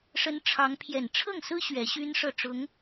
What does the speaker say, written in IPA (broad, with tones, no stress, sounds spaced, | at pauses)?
ʂ ə˧˥ n ʈ͡ʂʰ ɑ˧˥ ŋ pʰ j ɛ˨˩ n ʈ͡ʂʰ ɤ˥˩ ŋ s ɹ̩˥ ɕ ɥ ɛ˧˥ ɕ y˥ n ʂ ɤ˥˩ ʈ͡ʂ ʊ˧˥ ŋ